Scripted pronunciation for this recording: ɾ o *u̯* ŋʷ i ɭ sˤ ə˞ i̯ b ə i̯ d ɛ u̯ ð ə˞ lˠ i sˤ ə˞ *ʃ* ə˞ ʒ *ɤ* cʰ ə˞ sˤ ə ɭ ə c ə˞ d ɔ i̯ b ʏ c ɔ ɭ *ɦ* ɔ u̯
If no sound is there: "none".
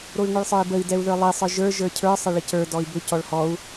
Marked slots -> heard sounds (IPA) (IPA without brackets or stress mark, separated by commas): i̯, ʒ, ə˞, h